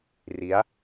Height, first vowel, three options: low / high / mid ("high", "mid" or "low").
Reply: high